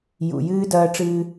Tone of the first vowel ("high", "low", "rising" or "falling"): low